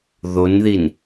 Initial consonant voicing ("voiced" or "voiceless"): voiced